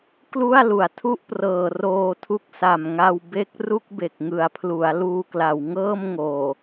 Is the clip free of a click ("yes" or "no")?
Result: yes